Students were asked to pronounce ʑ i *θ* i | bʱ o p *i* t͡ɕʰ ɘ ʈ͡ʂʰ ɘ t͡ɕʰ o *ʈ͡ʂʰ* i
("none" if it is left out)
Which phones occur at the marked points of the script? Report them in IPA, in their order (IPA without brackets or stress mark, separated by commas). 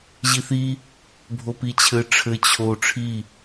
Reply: θ, i, ʈ͡ʂʰ